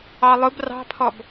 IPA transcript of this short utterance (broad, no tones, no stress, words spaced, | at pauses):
ɑlˠʊb rɑ̤pʰɔb